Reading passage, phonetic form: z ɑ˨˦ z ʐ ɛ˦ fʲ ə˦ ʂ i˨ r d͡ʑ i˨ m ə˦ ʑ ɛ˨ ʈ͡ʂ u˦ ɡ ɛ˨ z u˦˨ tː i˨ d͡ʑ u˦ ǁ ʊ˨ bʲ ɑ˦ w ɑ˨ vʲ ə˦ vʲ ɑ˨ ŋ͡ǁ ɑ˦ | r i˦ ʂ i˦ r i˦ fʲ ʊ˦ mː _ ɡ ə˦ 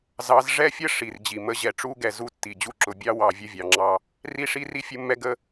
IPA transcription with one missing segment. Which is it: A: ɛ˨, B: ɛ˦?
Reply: B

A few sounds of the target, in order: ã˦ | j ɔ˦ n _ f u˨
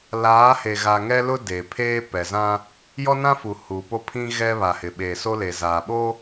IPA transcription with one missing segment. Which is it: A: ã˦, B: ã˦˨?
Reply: A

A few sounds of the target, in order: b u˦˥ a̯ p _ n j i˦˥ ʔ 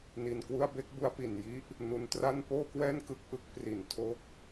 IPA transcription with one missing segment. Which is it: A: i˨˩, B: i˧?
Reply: A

